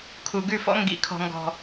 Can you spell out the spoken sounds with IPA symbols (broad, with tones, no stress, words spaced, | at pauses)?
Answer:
kʰu˨ɡʉ˦˨fɔ̰˦ ŋɡḭ˨˦kʰɔ̤˨ŋɡɔ̤˨